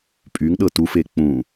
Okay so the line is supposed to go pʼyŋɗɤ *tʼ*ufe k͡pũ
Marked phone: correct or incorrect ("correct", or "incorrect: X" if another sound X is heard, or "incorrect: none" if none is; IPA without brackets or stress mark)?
incorrect: t